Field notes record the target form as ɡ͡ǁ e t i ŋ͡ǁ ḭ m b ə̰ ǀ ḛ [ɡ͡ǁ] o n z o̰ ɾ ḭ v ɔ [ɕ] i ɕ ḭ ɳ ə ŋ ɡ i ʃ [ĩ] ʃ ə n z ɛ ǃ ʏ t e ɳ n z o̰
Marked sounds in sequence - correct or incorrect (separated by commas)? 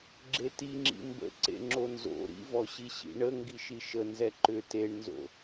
incorrect, correct, incorrect